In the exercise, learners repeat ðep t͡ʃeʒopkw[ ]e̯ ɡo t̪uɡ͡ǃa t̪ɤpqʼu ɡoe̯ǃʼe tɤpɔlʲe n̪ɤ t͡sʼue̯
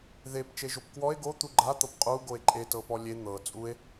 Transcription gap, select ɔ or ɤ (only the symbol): ɔ